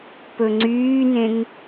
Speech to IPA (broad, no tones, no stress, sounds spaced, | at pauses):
p ɵ ŋ͡ǀ yː n ẽ ŋ